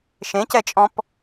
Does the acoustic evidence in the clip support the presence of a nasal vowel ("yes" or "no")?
yes